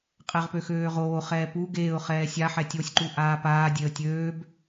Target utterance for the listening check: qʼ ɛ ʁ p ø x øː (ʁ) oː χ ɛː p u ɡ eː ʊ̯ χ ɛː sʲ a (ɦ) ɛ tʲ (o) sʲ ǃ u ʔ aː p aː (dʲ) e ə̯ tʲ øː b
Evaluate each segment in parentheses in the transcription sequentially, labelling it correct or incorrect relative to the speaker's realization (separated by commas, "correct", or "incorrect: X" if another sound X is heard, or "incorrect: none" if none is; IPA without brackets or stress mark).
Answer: correct, incorrect: ħ, correct, correct